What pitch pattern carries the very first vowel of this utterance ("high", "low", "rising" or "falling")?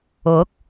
rising